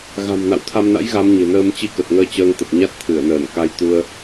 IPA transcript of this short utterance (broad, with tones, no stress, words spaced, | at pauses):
ɣa̤˨˩mna̰˧˨wt̪ʰa˧mna̰˧˥j ɣa˨˦mɲe̤˨˩nəː˧m t͡ɕi˧kə˨˩t̚ŋəː˧ t͡ɕəː˧ŋt̪ə˨˩p̚ɲa˦˥t̚ t̪ʰɨ˧˩ə̯nəː˧˩nka˧jt̪u˧ə̯